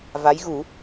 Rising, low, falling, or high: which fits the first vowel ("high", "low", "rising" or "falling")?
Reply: rising